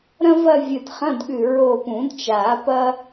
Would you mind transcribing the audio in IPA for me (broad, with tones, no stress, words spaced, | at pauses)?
ɾɐ̃˥vɐ˥˧vʲɨ˧˩t χɐ̃˧˥˧dɠʉ˧˩ ɹo˧˩pũ˨˩˦dt͡ʃa˨˩˦ pɐ˥